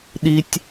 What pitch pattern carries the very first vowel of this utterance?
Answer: high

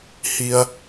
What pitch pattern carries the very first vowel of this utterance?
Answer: low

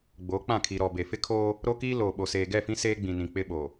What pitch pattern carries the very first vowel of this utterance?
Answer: rising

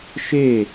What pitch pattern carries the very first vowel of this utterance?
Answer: falling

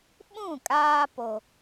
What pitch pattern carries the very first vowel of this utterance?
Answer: falling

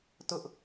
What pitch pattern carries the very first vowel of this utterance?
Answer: high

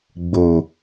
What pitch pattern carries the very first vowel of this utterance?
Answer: low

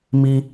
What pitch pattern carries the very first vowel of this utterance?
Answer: high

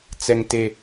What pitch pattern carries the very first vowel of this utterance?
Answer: low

